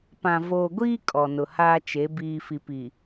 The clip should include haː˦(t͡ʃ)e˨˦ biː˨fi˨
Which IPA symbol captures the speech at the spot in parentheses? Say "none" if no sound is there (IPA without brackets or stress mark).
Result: t͡ʃ